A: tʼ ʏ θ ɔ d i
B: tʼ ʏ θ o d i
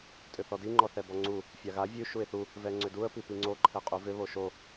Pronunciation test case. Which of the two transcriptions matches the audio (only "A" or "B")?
A